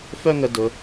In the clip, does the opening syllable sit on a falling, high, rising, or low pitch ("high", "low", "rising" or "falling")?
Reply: high